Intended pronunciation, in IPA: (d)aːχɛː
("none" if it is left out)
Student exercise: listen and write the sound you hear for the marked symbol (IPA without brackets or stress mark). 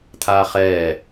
t̪ʰ